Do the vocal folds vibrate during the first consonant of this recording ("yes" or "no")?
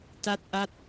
no